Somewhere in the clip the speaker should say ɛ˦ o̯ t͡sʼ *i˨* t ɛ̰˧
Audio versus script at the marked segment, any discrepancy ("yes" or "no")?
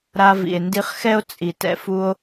no